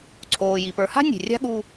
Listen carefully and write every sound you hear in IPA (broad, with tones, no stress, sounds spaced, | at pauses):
ǀʰ oː˩ j i˩ p ə˞˩˧ h a̤˥ nʲ e̤˩ rʲ a̤˥ ɠ u˧